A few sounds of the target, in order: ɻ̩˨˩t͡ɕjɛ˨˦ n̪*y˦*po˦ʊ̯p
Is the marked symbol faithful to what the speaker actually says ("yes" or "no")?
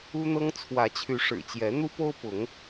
no